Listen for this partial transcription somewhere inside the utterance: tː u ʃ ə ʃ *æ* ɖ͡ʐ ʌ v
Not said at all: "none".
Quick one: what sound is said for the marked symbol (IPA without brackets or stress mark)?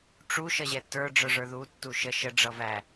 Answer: ə